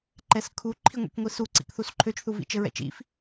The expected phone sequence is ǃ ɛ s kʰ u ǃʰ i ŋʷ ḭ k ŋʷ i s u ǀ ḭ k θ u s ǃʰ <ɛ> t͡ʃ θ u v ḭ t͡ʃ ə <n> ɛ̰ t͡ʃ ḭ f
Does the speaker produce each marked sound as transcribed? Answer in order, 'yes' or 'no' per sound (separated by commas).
no, no